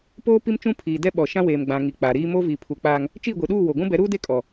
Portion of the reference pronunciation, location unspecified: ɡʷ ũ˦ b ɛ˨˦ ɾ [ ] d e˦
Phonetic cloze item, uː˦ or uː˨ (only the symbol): uː˦